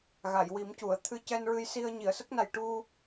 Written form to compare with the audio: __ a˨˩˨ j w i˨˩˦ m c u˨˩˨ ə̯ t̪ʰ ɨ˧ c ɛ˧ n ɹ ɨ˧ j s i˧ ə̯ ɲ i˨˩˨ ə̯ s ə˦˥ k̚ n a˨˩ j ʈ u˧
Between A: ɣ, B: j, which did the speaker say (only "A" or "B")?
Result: A